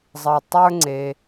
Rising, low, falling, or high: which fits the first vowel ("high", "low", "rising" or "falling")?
low